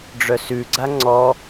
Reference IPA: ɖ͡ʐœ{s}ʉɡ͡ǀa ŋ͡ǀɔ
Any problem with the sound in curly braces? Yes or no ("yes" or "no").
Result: no